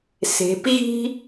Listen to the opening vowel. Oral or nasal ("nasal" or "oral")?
oral